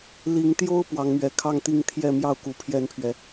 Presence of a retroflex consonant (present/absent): absent